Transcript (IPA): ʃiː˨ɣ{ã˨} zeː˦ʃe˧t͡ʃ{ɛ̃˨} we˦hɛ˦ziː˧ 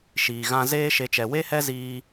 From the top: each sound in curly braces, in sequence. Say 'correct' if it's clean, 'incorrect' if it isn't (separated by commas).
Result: incorrect, incorrect